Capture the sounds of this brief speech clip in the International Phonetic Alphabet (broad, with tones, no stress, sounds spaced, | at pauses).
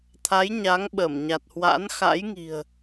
t̪ʰ a˨˦ j ɲ a˨˦ ŋ ɓ ə˧˩ m ɲ a˨˩ t̚ h w a̰˧˥ n x a̰˧˥ j ŋ i̤˨˩ ə̯